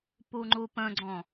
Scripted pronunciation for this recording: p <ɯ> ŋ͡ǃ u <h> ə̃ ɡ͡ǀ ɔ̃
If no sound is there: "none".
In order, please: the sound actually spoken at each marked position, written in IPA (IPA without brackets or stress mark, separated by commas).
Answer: u, p